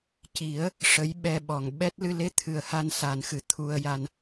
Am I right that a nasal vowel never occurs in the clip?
yes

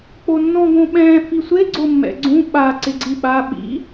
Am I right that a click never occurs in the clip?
no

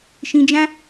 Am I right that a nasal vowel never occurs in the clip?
no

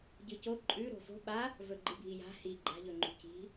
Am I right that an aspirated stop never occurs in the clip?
yes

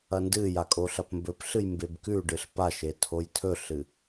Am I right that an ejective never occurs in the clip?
no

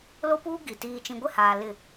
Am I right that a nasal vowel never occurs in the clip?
no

